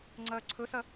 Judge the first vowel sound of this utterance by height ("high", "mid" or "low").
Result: low